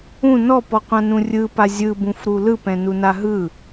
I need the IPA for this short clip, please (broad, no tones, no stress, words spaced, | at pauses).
ũ nɔpɔqʷãnũ rʲɯpa zʲɯbũfɾu lɯpɛ̃nuna ɦɯ